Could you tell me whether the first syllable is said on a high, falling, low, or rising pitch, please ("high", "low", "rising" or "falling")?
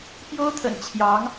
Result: high